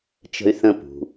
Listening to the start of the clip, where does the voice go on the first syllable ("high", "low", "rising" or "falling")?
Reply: high